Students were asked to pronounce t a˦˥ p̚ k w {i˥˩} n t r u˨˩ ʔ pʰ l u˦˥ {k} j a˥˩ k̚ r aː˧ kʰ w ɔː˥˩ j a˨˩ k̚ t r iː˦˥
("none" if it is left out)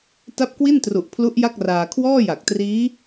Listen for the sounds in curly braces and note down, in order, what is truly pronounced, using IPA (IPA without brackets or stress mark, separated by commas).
i˥˩, ʔ